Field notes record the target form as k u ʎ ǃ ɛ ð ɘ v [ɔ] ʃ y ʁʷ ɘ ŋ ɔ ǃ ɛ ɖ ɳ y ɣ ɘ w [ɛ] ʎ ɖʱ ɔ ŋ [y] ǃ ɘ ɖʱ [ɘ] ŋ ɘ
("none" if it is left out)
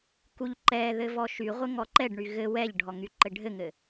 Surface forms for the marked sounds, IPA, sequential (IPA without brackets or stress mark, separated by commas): ɔ, ɛ, y, ɘ